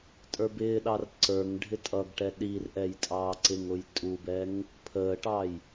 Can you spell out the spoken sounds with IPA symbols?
tʼ ə˞ b ɪː ɗ ɑ r ǀ ə˞ ŋ ɖʱ ɪ tʼ ʌ ɡ ʈ ɛ ɗ i r ʔ ɛ j tʼ ɑː ǀ ɪ ŋ ʊ j tʼ u b ɛ ŋ | pʰ əː ʈ ɑ j

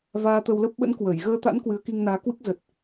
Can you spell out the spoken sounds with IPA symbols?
v aː˧ t̪ ə˧ w l ə˦˥ p̚ ɓ ə̰˧˥ n k w ə˧˩ j ɣ əː˧ t̪ a̰˧˥ n k w ɨ˨˦ ə̯ k i˧ ŋ n aː˨˦ k w ɨ˦˥ k̚ z ə˨˩ t̚

